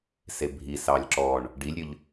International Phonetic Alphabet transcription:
s e bʱ i s ɑː lʲ ǁ ɔ ɳ | ɖ i lʲ ɾʲ ɵ ʎ

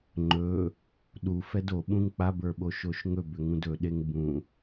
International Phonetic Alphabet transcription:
ŋ͡ǃ ɵ | ɗ u f ɛ d o ɓ ũ ŋ k͡p a b ə˞ ɓ o ʃ o ʃ ŋ ɵ b ʏ ŋ ũ d ɵ ɗ e ŋ b ũ

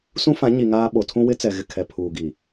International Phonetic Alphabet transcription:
s ũ˦ f ã˨˦ ɲ i˨ ŋ aː˦ ɓ o˨ tʰ ũ˦ w ɪ˦ t͡s ɛ˨ ɣ ɪ˨ kʰ ɛ˨ pʰ uː˨ ɡ i˨

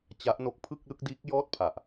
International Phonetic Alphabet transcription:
t͡ɕ a˦˥ ʔ n o˦˥ k̚ pʰ ɯ˥˩ k̚ l ɯ˥˩ k̚ d iː˦˥ k̚ j ɔː˥˩ t̚ pʰ a˨˩ ʔ

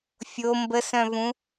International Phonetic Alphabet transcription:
fʲ o m b ə s œ̃ v ũ

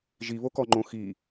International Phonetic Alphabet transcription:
ʒ i β o k ɔ ŋ͡ǃ õ x i

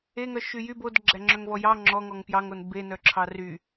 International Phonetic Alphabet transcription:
e ŋ œ ʃ y j y b o d ɡ͡ǁ æ ŋ͡ǁ œ ŋ v ɔ j ɑ ŋ͡ǁ ɔ ŋ ɔ ŋ p j ɑ ŋ o n b e n œ ǁʰ ɑ r y

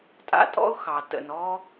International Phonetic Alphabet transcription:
tʼ a̰˥ tʼ ɔ̰˥ ʊ̯ x ɑ˨ t ə̰˨ n ɔ˦

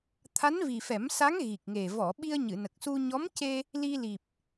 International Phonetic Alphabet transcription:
t̪ʰ a˧˥ n v i˨˩ f ɛ˨˩˦ m s a˧˥ ŋ ɣ i˨˩ k̚ ŋ e˨˩ v ɔ˨˩˨ ɓ i˧ ə̯ ɲ ɨ˨˩˨ n ə˨˩ k̚ s u˧ ɲ ɔ˧˥ m c e˧ | l i˧ l i˨˩ p̚

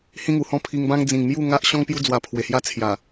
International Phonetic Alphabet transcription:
h ĩ˦ ŋ u˨˩ h ɔ̃˥˧ pʰ i˧ ŋ b ã˦ ŋ d͡z ĩ˨˩ ŋ m j u˥˧ ŋ a˦ ʔ ɕ ɔ̃˦ ŋ p j u˦ d͡z w a˧ pʰ w e˨˩ h j a˥˧ t͡sʰ j a˨˩

